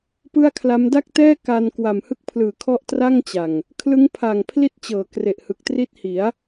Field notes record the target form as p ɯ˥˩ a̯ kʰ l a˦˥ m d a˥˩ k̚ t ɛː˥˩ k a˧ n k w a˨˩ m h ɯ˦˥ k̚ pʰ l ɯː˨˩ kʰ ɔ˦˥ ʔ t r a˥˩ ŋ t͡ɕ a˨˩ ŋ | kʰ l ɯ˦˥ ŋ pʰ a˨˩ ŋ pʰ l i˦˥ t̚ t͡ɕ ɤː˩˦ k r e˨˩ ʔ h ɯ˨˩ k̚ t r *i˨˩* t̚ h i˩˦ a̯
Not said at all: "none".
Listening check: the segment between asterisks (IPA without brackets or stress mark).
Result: i˦˥